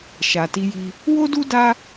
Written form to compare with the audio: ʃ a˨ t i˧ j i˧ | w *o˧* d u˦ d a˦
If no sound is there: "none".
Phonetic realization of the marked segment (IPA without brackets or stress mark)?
o˦